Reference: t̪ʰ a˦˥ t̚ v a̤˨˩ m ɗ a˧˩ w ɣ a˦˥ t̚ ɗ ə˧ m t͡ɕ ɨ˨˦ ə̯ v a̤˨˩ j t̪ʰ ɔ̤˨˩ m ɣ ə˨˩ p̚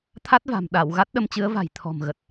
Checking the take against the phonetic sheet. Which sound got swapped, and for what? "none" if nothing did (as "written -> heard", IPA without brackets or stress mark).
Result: p̚ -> t̚